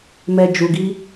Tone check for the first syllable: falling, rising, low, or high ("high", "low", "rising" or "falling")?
low